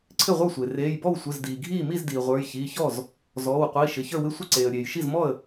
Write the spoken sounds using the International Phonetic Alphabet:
ǀʰ ɪ˥˩ ʁʷ ə˞˥˩ sʷ e˩ r eː˩˧˩ j b ɔ˥˩ w sʷ ɪ˩˧˩ z d iː˩ ɡʱ iː˥˩ m i˥˩ z d iː˩ ʁʷ ə˞˩˧˩ j ç iː˩˧˩ ç ɔ˥˩ z | z ɔː˩˧˩ w qʷ iː˩˧˩ ʃ ɪ˩˧˩ ç ə˞˥˩ w ɪ˥˩ sʷ ɪ˥˩ ǀ eː˩ ə̯ ɾʲ eː˩ j ʃ i˥˩ z m ɔ˥˩ ə̯

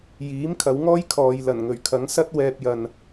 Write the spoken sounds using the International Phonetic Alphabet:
j iː˨˥ m kʰ ɐ˨˧ w ŋ ɔː˥ j kʰ ɔː˧ j l ɐ˨˩ n ŋ ɵ˨˩ ɥ kʰ ɐ˨˥ ŋ s ɐ˥ t̚ w ɛː˧ p̚ j ɐ˨ n

